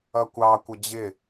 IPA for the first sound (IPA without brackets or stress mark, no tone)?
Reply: ʌ